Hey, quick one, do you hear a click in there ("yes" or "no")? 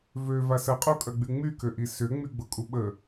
no